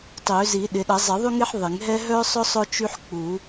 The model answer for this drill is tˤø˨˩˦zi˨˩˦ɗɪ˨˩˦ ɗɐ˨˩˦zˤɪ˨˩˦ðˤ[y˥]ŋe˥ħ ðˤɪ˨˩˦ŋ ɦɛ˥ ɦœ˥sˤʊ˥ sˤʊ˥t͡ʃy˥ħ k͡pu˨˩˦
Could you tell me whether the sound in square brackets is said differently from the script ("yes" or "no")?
no